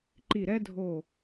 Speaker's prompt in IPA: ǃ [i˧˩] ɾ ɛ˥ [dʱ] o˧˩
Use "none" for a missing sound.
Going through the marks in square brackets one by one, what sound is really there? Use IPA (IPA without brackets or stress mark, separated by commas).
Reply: i˧˩, dʱ